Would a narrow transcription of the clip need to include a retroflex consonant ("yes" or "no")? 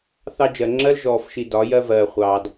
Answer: no